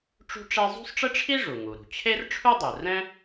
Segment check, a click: absent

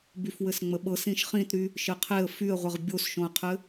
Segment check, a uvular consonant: present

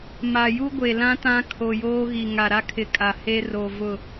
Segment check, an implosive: absent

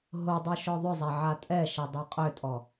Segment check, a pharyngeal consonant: present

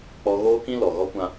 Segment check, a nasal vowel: present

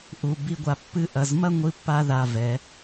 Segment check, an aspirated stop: absent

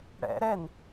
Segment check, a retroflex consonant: present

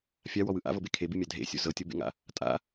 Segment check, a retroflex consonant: absent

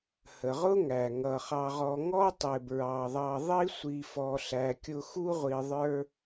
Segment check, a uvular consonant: present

